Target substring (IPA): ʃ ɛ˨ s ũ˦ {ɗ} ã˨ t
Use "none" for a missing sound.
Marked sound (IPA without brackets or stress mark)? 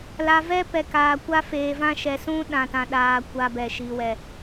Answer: ɗ